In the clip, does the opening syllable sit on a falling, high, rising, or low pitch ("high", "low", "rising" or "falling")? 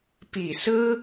low